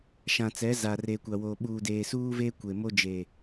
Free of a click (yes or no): yes